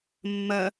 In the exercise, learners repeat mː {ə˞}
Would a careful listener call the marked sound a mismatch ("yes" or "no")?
yes